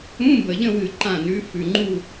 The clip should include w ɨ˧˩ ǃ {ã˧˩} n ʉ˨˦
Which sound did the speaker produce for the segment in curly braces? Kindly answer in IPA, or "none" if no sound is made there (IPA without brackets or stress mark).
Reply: ã˧˩